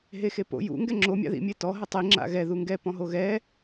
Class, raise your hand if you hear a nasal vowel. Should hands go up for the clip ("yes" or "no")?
yes